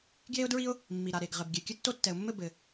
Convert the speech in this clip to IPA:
ɡ j e˥ ʊ̯ d ɹ i˥ ʊ̯ | mː i˩ ɾ a˩ ɾ e˩ ɡ ʁ ɘ˩ b ɡʲ ɛ˩ kʲ ə˥ tː o˥ tː ɛ˩ ʊ̯ mː ɘ˥ b ɘ˩

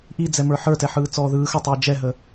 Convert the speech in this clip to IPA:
ʔ i d͡z ɛ m ə˞ ħ ə˞ t ɛ ħ ɯː t͡s ɔː ð ɯː x ə tˤ iː d͡ʒ ɛ ɦ ə

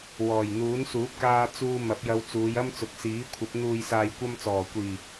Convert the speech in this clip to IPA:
w ɔː˨˩ j n̪ uː˨˥ n s uː˨˥ p̚ k aː˧ t͡s uː˧ m ɐ˨˥ p̚ j ɐ˧ w t͡s uː˨˧ j ɐ˥ m t͡s ʊ˨˥ k̚ s iː˨˥ kʷʰ ɐ˨˥ p̚ n̪ uː˨ j s aː˨ j kʷ ɐ˧ m t͡s ɔː˨˩ kʷ iː˨˩

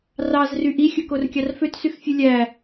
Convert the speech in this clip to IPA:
r ɑ z r y ʔ i xʲ ɯ k o r kʲ ɑ r f ø t s y x fʲ ɯ lʲ æ

